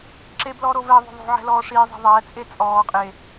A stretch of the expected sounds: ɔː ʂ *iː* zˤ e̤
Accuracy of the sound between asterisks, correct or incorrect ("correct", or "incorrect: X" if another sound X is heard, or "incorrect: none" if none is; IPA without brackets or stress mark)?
correct